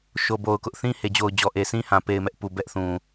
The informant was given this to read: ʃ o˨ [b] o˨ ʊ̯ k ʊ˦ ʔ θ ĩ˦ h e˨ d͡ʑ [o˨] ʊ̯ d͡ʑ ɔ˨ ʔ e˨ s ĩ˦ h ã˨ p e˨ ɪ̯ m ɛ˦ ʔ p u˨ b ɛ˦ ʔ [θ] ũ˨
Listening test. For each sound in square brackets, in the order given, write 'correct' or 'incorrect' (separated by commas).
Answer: correct, correct, correct